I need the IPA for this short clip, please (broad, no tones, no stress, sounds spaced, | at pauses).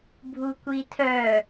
bʱ u kʷ i tʰ œ